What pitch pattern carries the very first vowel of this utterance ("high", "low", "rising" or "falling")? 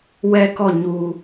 falling